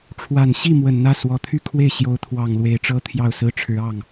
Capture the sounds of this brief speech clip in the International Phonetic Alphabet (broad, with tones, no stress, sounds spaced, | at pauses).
ʈ͡ʂʰ w a˨˩ n ɕ i˥˩ m w ə˨˩ n n̪ ä˥˩ s w ɔ˨˩ t̪ʰ y˥˧ kʰ w e˥˩ ɪ̯ ɕ j o˧˥ ʊ̯ t̪ʰ w ɑ˨˩ ŋ l w e˧˥ ɪ̯ ʈ͡ʂ ɤ˥ t̪ʰ j ɑ˥˩ ʊ̯ s ɹ̩˥ ʈ͡ʂʰ ɻ̩˧˥ ɑ˥˩ ŋ